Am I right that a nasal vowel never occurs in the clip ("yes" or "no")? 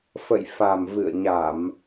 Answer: yes